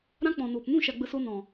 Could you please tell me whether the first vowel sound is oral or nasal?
nasal